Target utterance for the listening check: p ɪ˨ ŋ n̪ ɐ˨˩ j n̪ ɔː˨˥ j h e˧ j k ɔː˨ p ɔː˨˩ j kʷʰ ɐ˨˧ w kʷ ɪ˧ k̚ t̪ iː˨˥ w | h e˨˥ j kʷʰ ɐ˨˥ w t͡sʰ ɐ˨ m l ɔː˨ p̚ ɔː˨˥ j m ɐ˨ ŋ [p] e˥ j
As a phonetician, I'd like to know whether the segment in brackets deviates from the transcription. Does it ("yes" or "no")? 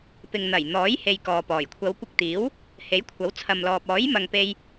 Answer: no